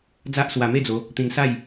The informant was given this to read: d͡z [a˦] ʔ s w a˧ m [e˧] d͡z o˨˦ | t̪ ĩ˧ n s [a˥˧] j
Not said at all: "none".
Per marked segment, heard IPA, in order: a˦, e˥˧, a˥˧

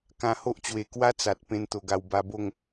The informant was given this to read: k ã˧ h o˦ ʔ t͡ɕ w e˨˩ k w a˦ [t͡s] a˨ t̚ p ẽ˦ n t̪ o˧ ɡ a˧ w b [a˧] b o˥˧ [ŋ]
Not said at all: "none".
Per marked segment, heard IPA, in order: t͡s, a˧, ŋ

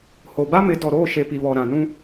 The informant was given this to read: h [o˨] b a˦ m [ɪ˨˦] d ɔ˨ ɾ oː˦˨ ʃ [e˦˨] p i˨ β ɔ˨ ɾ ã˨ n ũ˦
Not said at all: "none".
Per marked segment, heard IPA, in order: o˨, ɪ˨˦, e˨

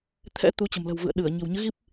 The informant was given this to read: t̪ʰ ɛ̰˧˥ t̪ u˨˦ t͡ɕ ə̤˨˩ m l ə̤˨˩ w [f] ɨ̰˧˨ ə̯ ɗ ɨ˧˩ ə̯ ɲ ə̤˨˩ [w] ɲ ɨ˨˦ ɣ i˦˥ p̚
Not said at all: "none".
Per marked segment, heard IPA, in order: v, w

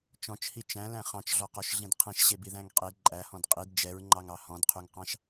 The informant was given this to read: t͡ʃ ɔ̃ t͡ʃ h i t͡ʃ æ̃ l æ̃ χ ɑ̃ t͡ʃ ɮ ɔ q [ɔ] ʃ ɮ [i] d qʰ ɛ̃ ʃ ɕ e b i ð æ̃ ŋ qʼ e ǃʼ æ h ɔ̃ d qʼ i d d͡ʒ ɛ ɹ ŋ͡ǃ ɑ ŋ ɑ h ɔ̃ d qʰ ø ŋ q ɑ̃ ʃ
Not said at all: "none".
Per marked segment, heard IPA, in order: ɔ, ĩ

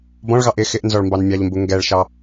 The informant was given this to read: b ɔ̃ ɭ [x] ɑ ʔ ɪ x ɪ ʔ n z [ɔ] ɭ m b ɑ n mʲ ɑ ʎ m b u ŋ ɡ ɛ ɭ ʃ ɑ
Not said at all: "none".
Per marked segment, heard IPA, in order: ɣ, ɔ

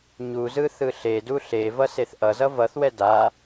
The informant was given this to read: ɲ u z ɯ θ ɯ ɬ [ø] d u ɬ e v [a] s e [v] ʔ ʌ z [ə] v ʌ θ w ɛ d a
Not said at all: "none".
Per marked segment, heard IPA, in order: e, ʌ, θ, ʌ

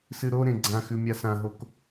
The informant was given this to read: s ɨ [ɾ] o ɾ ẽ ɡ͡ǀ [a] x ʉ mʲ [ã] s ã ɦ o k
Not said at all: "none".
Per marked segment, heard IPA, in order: ɾ, ã, a

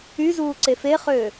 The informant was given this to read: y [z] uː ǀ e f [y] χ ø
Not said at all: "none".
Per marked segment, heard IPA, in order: z, e

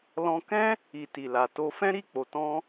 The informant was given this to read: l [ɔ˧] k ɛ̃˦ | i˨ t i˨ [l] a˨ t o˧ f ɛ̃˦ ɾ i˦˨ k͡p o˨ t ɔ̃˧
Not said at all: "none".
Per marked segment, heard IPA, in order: ɔ̃˧, l

